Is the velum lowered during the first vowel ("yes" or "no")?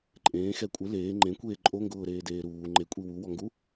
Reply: yes